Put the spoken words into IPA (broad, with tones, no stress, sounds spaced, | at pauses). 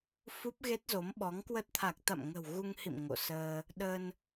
f u˦˥ p̚ ɣ e˦˥ t̚ z o˨˦ m ɓ ɔ˨˦ ŋ k w ə˦˥ t̚ t̪ʰ a˨˩ k̚ t̪ a̰˧˨ m ŋ ə̤˨˩ w ɣ u˧ ŋ h ḭ˧˨ m ŋ o̰˧˨ s əː˧ | ɗ ə˧ n